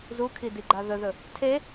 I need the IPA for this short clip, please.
z u kʰ i d i ɡ͡ǃ a ð ɵ ð ɵ | tʰ e

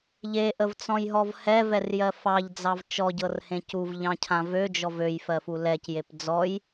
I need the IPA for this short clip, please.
ʎ e ʔ ə v t͡s ɔ̃ j ɦ ɔ v h ɛ v ɛ r j ɜ f ɑ ʎ d͡z ɑ v t͡ʃ ɔ ɟ ɤ r h ẽ c u v ʎ ɑ̃ cʰ ã v ø d͡ʒ ɔ v ø j f ɜ f u l ɛ c j e p d͡z ɔ j

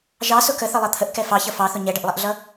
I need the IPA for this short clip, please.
ʒ ɑ s ʊ k ə θ ə lˠ ʌ t̪ʰ ə ʔ k ɛ f ɑ ç ʌ f ɑ θ ʊ ɲ ɛ ɖ ə ʔ lˠ ɛ ʔ ɮ ʌ

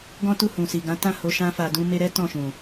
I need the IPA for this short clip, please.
ɡ ɔ̃˦ t u˦˨ h ũ˨ s i˨ ɡ ã˨˦ t ã˦˨ h o˧ ʃ ã˦ f a˧ d ũ˧ m e˧ ɾ ɛ˦ t ɔ̃˦˨ ʃ ũ˨

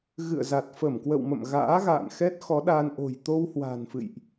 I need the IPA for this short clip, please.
ɣ ɨ̰˧˨ ə̯ z a˨˩ t̚ f ə˧˩ m k w ə̰˧˨ w m ə̰˧˨ m ɣ a̰ː˧˥ ɣ a̰ː˧˨ n x ɛ˦˥ t̚ x ɔ˨˦ ɗ a˧ n ʔ o̤˨˩ j t̪ o˧ w h w a̤˨˩ n f ɨ̰˧˨ j ʔ

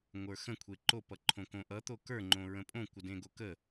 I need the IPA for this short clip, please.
ŋʷ ə˞ x ə̃ kʷʰ e ǃ o p ʌ ǃʰ õ k õ ʔ ʌ t̪ o k ə˞ ŋ͡ǃ õ ɹ ə̃ pʼ õ kʷ ə d ẽ ɡ o k ə

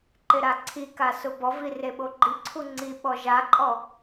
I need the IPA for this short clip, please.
ǃ ɪ ɾ a ǀʰ i k a s ʊ b ɔ v i r e ɓ o ɡ͡ǃ i ǀʰ u ŋ͡ǀ i ɓ ɔ ʒ a ǃʼ ɔ

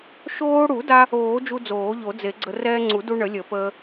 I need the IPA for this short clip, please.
ʃ oː˧ ɽ u˨˩˦ d a˧ | oː˨˩˦ d͡ʒ u˧ d͡z oː˨˩˦ ʎ o˨˩˦ d͡z e˨˩˦ ɡ͡ǀ ə˧ r ɛː˧ ŋ͡ǀ u˨˩˦ d u˧ ɳ ə˨˩˦ lʲ ə˨˩˦ p əː˧

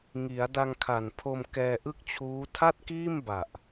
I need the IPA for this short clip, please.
ŋ i˩˦ a̯ d a˧ ŋ kʰ a˨˩ n pʰ o˧ m k ɛː˧ ʔ ɯ˥˩ k̚ t͡ɕʰ uː˦˥ tʰ a˥˩ t̚ k iː˥˩ m b a˨˩ ʔ

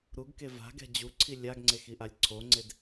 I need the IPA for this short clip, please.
ɾ u ɡ k e v a̤ ɡ ɛ̤ d͡ʑ u ǀʰ i lʲ a ɡ ŋ͡ǀ e x i ʔ a lʲ ǀʰ o ŋ͡ǀ e d

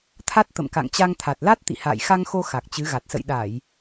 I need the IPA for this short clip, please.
t̪ʰ a˦˥ t̚ t̪ ə̰˧˨ m k a̰˧˨ ŋ t͡ɕ a˧ ŋ t̪ʰ a˨˩ t̚ l a˦˥ t̚ t̪ ḭ˧˨ h a̰ː˧˨ j x a˧ ŋ x o˧ x a˨˩ k̚ t͡ɕ ɨ˨˦ ɣ a˨˩ t̚ s ə̰˧˨ j ɗ a˧˩˨ j

